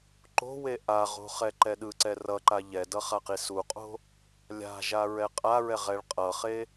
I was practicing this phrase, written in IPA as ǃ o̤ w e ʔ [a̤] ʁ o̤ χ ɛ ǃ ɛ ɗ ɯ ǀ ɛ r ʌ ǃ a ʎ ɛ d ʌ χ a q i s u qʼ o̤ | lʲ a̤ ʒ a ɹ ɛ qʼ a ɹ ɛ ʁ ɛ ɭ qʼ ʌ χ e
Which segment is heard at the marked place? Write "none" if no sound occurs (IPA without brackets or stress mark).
a